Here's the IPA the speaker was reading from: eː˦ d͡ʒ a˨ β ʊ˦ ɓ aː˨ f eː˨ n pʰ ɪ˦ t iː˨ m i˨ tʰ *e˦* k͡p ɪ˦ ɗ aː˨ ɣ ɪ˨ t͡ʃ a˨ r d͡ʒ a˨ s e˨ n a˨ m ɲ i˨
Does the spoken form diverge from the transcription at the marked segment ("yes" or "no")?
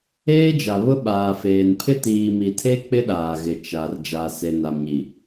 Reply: no